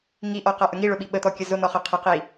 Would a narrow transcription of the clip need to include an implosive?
yes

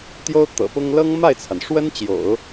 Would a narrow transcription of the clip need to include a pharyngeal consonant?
no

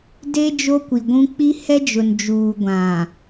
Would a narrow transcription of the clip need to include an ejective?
no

